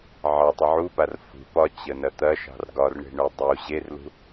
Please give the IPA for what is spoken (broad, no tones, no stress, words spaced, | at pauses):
ʕɑtˤə ʕupar fṳ pɒt͡ɕənɐ t̪ɐʃɑ̤r ɡɒrɳe̤ɳu dˤu ʑerlṳ